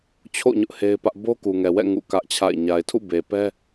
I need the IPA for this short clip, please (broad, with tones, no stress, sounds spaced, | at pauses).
t͡ɕʰ o̰˦˨ ɲ ʊ˦ ʔ h e˦ ɪ̯ p ä˦ ʔ b o˦ k u˨ ŋ ɛ˨ w ɛ̰˦˨ ŋ ṵ˦˨ k ä˦ ʔ t͡ɕʰ a̰˦˨ ɪ̯ ɲ a˨ ɪ̯ tʰ ṵ˦˨ b e˨ p ɛ˦